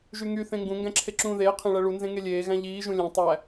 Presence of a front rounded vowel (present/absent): present